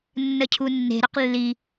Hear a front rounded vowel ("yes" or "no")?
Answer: yes